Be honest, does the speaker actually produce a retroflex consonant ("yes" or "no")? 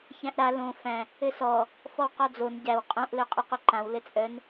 no